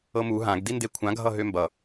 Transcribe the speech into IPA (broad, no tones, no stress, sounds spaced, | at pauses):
ɤ m u ɦ ã ɡ d i n d e kʷʰ ã ɡʱ ʌ ɦ ø m b ʌ